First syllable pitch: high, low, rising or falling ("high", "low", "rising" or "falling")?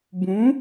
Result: rising